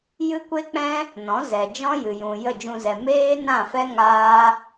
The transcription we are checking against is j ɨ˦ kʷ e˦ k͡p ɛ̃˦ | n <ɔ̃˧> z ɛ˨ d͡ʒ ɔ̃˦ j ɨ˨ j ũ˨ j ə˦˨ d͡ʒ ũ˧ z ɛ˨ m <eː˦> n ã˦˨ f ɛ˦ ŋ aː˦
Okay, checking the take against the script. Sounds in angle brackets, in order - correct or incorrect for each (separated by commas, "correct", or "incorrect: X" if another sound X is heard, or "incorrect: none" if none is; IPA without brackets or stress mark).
incorrect: ɔ̃˨˦, correct